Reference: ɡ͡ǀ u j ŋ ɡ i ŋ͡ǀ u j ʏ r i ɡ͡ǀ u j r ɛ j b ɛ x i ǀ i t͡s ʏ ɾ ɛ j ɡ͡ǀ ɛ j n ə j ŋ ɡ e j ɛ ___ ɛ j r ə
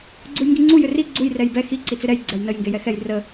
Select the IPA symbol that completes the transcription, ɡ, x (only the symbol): x